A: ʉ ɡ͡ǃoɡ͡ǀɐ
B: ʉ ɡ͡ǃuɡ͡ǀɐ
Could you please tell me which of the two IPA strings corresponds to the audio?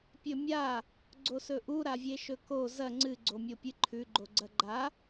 A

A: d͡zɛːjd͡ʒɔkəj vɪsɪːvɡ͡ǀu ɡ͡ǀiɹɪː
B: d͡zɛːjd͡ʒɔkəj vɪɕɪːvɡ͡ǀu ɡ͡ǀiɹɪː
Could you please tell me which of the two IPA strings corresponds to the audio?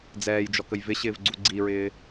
B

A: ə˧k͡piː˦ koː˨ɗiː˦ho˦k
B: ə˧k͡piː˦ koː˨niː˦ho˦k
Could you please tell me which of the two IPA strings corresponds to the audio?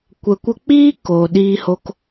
A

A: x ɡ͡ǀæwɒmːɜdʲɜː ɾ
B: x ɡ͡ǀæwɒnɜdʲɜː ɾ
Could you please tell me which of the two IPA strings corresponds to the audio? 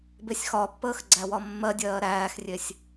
A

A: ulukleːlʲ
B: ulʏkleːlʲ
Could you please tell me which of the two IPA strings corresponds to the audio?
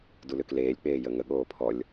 B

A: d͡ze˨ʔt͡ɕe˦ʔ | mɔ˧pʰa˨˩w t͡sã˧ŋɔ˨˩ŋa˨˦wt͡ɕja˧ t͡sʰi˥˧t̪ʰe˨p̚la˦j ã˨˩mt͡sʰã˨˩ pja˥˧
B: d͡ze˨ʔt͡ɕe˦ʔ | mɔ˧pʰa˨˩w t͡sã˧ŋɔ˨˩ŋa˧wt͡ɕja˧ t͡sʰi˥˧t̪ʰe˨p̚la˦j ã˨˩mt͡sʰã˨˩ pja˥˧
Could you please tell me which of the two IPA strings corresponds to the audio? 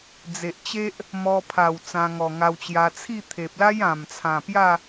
B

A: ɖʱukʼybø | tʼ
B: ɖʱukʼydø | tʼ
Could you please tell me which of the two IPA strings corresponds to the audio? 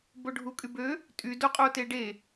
A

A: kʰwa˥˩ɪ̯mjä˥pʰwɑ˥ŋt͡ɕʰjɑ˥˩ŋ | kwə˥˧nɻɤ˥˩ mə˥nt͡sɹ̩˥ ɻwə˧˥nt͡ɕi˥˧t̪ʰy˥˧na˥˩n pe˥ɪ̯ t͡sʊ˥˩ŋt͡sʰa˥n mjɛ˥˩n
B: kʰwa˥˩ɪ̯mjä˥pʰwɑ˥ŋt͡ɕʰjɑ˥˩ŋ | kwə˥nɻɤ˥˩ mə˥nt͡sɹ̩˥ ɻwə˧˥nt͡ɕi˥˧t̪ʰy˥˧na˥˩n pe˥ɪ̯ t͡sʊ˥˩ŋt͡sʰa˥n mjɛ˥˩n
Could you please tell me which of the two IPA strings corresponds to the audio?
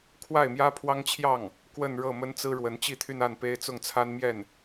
A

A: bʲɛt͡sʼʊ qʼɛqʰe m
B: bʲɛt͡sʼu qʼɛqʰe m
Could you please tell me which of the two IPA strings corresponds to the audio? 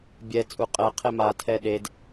B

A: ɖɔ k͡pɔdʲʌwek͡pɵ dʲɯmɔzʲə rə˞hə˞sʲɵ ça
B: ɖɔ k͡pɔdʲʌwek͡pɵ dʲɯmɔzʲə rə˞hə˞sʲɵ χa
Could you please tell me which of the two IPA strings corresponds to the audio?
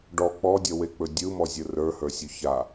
A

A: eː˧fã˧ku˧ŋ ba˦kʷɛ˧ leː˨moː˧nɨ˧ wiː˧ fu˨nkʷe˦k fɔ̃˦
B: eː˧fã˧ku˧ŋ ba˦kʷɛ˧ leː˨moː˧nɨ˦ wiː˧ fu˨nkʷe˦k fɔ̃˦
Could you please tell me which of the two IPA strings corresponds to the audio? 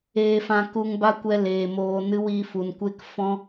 B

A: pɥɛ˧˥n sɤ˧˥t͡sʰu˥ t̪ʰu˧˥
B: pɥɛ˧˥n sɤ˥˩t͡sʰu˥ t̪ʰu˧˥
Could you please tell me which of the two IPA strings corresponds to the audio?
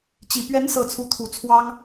B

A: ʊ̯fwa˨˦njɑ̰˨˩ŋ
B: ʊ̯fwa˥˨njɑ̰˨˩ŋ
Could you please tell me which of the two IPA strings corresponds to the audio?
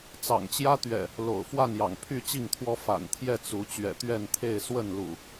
B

